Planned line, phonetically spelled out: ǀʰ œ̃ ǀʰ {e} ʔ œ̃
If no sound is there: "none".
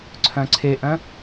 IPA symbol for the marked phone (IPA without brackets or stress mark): e